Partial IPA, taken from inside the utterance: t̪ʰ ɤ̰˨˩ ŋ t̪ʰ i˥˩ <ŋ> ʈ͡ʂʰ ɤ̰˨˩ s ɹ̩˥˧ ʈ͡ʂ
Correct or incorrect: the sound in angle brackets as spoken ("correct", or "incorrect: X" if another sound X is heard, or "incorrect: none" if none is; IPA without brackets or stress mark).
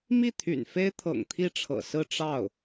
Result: incorrect: none